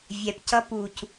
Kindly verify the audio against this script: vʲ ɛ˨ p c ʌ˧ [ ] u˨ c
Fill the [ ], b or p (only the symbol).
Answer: p